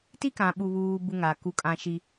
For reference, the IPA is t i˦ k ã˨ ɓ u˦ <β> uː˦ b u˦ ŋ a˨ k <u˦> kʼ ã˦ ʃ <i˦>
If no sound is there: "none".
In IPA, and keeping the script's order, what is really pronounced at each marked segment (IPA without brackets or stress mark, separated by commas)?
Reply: β, u˦, i˦